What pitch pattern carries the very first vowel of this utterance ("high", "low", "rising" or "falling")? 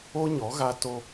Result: high